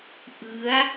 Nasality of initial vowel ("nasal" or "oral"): oral